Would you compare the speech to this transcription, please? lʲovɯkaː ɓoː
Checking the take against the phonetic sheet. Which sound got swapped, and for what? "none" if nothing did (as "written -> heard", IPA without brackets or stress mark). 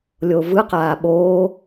k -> q